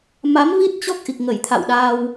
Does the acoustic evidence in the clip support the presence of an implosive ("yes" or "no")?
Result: yes